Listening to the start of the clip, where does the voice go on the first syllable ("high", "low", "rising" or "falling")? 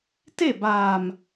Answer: falling